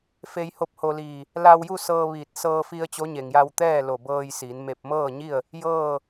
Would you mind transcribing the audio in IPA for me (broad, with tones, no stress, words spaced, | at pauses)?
fe˧jho˧˥p̚ho˧liː˧˩ | la˧wju˥˨sɤː˧ ʋiː˧˩t̚ sɤː˧fi˧ə̯ t͡ɕo˧˥ɲe˩ŋja˧w t̪ɛː˥˨lo˧˩bɤː˧j si˩˧nme˧p̚ mɤː˥˨ɲi˥˨ə̯ | jɤː˥˨